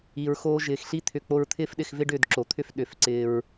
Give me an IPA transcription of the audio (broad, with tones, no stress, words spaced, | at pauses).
i˨ɹxoː˧ ʒɪː˨xɬi˦ t̪ʰʏ˧ k͡po˧ɹt̪ʰɪː˦fɗɪ˧xvɪ˦ ɖʏː˦˨dǁo˨t̪ʰʏ˦f ɗʏ˨˦fǀɪː˧ɹ